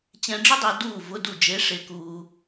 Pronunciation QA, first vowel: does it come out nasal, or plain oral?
nasal